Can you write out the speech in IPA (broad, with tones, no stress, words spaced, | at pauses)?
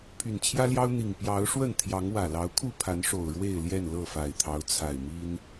pʰy˨˩nt͡ɕʰjä˦ljɑ˦ʊ̯n̪i˨˩ŋ pjɑ˨˦ʊ̯ʂwə˥˨nt̪ʰjɑ˨˦ŋ wä˨˩lɑ˨˦ʊ̯kʰu˥˨pʰa˨˦n ʂo˨˩ʊ̯ɻwe˥˨ɪ̯ljɛ˥˨n lɤ˥˨fa˨˩ɪ̯t̪ʰɑ˨˦ʊ̯ t͡sʰa˨˩ɪ̯mi˦n